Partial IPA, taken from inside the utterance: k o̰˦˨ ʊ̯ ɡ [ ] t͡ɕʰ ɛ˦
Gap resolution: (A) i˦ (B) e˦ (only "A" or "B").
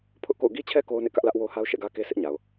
A